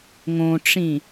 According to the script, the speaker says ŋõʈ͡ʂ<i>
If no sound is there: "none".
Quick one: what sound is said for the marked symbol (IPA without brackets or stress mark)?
ĩ